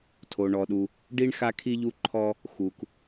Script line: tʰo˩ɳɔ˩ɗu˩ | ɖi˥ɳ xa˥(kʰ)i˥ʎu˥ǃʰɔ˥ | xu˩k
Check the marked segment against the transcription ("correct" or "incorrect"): correct